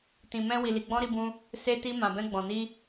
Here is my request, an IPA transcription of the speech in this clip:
t ĩ˨ m ɛ̃˧ w i˨ l i˨ ɡ͡b ɔ̃˧ ɾ i˧ b ũ˧ | s e˧ t i˧ m ã˨ b ɛ̃˧ ɡ͡b ɔ̃˨ n i˧

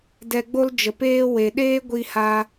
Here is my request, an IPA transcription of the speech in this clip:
d ɛ˧ ɡ͡b o˦ l d͡ʒ ə˨ p eː˦ w e˨ ɗ eː˦ ɡʷ i˦ h a˦

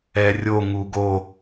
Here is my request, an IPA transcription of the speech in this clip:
ɛ rʲ o ŋ u ɡ o

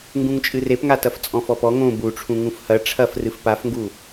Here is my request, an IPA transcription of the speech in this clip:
ŋ ɡ ũ ŋ t͡ʃʼ ɨ r e p ŋ a t ɐ f t͡sʼ ɔ̃ f ɔ p ɔ ŋ õ b u ʈ͡ʂʰ ũ ŋ ũ f h ɐ ʈ͡ʂʰ ɐ f r ɨ f p a f ŋ ɡ u

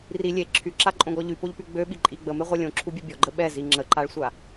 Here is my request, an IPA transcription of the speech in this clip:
r i lʲ e ǁʰ y ǁ a ǃʼ õ ɡ ɔ ʎ y p o ʎ p y ɡ͡b ø ɓ i ǃʼ i ɡ͡b ə m e ʁʷ ɛ lʲ õ ǁʰ u bʲ e bʲ ɔ ɡ͡ǃ ə ɓ ɛ z i ŋ͡ǁ ə ǃ a ɭ sʷ a

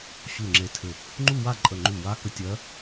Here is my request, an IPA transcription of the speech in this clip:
ɕ u˧˩ ŋ͡ǁ e˧˩ tʰ ɘ˧˩ | ŋ͡ǃ u˥˨ w a˥˨ ǃʼ ə˧˩ ŋ͡ǃ u˧˩ w a˧˥ k ə˧˥ tʲ ɜ˧˥

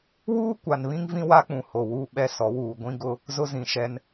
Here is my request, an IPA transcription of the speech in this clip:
w uː˦ kʷ a˨ n β ĩ˦ ŋ v ĩ˦ w a˦ k͡p ũ˨ h o˨ w uː˦ ɓ ɛ˦ s ɔ˨˦ w uː˨ ɡʷ ĩ˦ ɡ ʊ˦ | z ʊ˦ z ĩ˨ ʃ ɛ˦ n

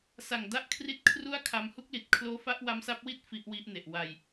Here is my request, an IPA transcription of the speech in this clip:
s a˨˩ ŋ d a˦˥ ʔ kʰ r i˦˥ t̚ kʰ r u˥˩ a̯ kʰ a˧ m h u˦˥ k̚ l i˨˩ t̚ kʰ l oː˦˥ f a˦˥ ʔ w a˦˥ m s a˦˥ p̚ w i˥˩ t̚ f i˦˥ ʔ w i˦˥ ʔ n e˨˩ ʔ w a˨˩ j

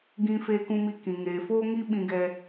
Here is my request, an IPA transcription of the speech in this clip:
ɡ ĩ˧ f eː˧ k ũ˧ m i˧ k ĩ˨ ŋ eː˨ f oː˦ ŋ i˦ ɓ ĩ˧ ɡ ɛ˧

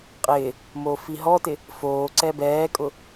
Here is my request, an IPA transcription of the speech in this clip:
qʼ ɪː | m oː f i ɦ ɔ t ɪ | f oː ǀ ɛ b ɛː kʼ ʊ

